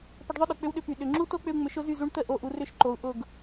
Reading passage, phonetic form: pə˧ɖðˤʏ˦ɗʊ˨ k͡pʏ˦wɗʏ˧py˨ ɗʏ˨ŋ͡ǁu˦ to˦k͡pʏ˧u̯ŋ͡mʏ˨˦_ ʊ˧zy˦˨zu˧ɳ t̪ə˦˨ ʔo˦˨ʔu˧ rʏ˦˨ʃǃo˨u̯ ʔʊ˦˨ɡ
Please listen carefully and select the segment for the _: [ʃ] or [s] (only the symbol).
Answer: ʃ